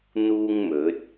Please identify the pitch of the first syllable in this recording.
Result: high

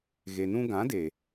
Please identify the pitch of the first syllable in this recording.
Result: low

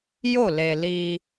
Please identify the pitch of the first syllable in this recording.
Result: falling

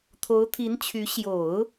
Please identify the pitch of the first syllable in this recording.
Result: rising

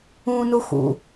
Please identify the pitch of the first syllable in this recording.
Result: high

